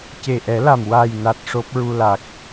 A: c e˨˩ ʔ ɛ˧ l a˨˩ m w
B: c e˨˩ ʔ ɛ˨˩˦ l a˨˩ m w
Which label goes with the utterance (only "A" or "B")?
B